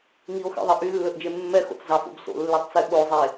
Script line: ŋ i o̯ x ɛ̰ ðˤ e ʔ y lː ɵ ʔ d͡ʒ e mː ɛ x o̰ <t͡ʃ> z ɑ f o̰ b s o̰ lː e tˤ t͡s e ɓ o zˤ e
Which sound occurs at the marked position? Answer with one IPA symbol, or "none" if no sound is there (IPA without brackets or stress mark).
t͡s